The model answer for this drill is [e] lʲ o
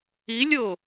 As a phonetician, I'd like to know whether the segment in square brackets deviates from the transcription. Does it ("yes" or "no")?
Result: yes